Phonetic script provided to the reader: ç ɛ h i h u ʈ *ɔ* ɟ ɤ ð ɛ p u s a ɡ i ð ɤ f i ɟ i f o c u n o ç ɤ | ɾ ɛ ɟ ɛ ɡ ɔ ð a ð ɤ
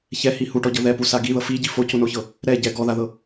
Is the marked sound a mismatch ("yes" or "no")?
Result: no